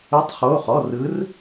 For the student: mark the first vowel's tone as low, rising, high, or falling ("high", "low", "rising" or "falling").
rising